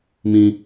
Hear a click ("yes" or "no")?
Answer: no